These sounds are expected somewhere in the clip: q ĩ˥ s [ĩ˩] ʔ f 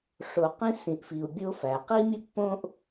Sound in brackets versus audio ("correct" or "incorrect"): correct